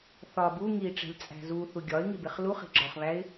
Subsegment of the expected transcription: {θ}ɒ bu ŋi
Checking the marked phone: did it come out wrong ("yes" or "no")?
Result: no